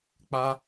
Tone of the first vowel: high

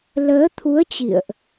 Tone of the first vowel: rising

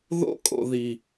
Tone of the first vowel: high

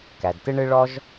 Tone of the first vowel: low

